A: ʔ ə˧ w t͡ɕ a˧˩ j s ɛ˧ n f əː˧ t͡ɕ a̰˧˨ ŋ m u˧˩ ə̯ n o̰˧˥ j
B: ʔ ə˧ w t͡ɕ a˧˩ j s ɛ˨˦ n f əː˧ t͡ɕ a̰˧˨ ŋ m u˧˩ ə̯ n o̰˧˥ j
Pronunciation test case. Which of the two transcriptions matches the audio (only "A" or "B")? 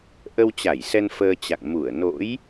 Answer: A